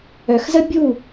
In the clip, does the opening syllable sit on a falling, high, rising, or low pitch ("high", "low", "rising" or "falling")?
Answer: low